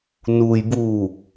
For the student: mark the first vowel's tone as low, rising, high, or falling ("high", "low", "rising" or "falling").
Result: low